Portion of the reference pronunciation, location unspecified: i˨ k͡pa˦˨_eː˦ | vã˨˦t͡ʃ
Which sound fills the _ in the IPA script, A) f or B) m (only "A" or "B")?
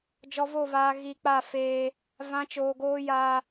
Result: A